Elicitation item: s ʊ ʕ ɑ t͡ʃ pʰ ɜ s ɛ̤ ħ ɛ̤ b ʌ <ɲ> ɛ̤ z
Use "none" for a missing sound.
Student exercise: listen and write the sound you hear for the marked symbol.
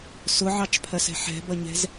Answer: ɲ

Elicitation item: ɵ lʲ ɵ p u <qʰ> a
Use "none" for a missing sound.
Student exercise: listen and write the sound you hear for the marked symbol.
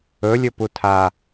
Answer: tʰ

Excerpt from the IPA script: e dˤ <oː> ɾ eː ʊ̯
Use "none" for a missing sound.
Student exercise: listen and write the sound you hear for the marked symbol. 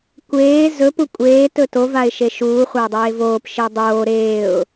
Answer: oː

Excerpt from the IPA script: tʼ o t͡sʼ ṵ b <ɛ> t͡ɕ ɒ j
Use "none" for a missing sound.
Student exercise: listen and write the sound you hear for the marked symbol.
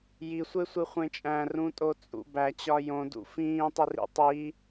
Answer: æ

